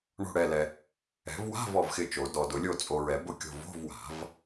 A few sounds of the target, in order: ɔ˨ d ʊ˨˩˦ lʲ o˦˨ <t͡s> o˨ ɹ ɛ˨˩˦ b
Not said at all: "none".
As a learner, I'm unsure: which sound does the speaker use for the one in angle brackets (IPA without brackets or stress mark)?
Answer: t͡sʼ